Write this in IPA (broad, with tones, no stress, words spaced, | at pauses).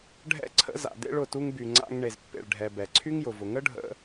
ɖʱɛ̰˦ǀʰə̰˦ za̰˨dḛ˧ɭ ʊ˨tu˧ŋby˨ ŋ͡ǀa̰˧ŋ ɳe˨zpːḛ˨ɭɖʱɛ˨ bɛ˨ǀʰy˦ŋjʊ˨vʊ˨ ŋə˦ɖʱə̰˧